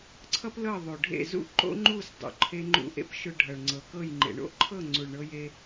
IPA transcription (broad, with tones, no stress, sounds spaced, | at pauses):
ǀʰ ʌ˦ p l ɤ˦˨ ðˤ o˨ ɖʱ ḛ˦˨ z ṵ˦ ǃ o̰˦ ŋ͡ǃ u˦˨ s dˤ o̰˨ ǃʰ e˧ ŋ͡ǃ ṵ˧ ʔ ḛ˦ p ʃ ʊ˧ ɖʱ ʌ˨ ɭ ŋ͡ǀ ɤ˨ k ɤ˦˨ j ŋ͡ǃ ḛ˨ ɳ o̰˦ ǃʰ ɤ˦˨ ŋ͡ǀ u˨ ɭ ɳ ɤ˧ j e˧